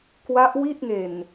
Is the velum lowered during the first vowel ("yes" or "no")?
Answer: no